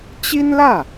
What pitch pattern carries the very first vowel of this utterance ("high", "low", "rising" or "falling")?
high